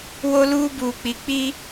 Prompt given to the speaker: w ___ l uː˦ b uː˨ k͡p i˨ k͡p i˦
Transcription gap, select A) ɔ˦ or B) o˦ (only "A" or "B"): B